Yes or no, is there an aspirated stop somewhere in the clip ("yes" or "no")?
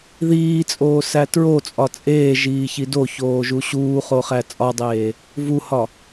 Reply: no